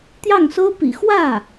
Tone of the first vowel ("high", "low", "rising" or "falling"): falling